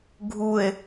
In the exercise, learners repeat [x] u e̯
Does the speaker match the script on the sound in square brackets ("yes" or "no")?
no